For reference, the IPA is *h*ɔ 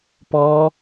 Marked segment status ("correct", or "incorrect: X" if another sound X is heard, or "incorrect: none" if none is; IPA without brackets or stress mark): incorrect: p